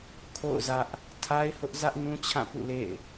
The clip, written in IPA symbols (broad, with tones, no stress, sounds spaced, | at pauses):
kʰ o̰˦˨ ʊ̯ z ä˦ ʔ | tʰ a˦ ɪ̯ h ʊ˦ ʔ z ä˦ ʔ n ũ˦ t͡ɕʰ ã˦˨ p ṵ˦˨ l ḛ˦˨ ɪ̯